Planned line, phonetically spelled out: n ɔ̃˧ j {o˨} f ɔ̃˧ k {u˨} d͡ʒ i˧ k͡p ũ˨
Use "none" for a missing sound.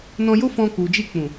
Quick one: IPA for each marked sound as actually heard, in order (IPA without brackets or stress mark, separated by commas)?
o˦, u˨